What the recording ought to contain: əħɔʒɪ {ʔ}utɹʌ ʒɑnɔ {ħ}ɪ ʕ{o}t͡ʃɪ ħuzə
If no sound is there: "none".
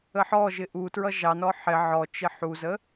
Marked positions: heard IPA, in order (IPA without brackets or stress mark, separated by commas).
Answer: ʔ, ħ, ɔ